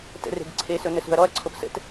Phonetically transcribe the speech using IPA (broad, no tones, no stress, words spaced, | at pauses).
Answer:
tə̰re̤ɡ ǀʰesɵ nəsṳɐ̯ɾɔɐ̯ǀʰop sə̰t